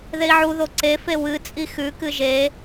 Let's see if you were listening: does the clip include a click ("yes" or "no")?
yes